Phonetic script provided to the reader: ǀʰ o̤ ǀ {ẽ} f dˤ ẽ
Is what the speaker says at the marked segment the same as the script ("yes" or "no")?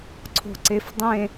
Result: no